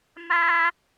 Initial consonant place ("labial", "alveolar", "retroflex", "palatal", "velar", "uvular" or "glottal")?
labial